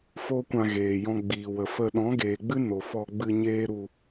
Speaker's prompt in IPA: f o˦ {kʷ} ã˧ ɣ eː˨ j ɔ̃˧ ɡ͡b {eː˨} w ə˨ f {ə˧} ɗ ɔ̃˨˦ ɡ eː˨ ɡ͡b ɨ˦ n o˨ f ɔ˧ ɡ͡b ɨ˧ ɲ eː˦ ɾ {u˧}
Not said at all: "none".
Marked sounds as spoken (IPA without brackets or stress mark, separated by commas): kʷ, iː˨, ə˧, u˧